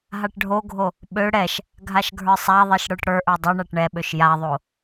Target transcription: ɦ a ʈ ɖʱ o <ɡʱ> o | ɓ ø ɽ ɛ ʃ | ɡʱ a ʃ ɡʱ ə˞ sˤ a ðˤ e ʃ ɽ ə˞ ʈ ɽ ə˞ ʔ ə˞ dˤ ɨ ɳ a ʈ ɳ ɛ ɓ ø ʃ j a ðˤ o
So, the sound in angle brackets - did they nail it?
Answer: yes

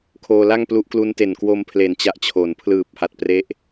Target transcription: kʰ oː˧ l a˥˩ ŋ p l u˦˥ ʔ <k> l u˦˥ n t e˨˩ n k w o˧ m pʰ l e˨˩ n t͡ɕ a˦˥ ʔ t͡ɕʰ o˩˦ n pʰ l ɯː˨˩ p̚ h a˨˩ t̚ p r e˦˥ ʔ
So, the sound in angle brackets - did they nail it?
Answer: yes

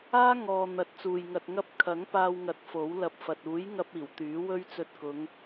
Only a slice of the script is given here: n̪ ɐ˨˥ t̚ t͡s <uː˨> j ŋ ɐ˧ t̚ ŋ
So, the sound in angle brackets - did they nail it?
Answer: yes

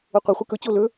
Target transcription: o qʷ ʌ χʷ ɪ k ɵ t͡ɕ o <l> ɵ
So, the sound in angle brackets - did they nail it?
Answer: yes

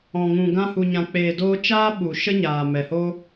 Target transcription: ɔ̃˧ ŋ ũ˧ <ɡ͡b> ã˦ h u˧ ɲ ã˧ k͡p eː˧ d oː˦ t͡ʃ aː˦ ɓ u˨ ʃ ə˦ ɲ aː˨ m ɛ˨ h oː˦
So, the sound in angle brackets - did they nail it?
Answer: no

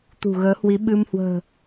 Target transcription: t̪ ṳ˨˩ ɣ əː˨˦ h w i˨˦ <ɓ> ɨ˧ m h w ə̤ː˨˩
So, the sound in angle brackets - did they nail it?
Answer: yes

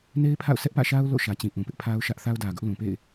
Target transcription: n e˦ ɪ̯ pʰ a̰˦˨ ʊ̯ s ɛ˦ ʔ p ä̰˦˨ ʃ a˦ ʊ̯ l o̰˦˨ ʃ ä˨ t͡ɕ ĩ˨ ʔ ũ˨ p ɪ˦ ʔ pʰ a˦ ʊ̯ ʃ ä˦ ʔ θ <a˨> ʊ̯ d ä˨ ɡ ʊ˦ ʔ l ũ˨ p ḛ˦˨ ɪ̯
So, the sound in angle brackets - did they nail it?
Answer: no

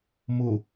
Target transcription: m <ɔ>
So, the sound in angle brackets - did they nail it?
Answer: no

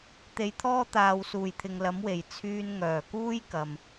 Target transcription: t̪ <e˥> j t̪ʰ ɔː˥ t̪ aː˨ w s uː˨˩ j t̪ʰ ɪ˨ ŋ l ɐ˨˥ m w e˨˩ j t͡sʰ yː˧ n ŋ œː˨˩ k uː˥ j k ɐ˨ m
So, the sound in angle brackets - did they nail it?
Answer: no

